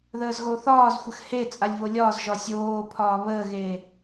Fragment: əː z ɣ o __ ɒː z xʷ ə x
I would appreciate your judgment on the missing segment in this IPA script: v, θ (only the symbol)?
θ